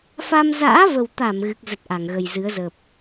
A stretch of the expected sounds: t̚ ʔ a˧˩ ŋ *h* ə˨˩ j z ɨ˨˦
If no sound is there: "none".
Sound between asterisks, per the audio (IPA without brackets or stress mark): ɣ